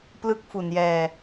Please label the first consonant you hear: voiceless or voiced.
voiceless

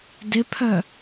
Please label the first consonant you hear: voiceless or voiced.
voiced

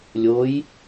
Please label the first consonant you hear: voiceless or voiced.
voiced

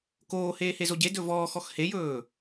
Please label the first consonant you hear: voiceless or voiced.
voiceless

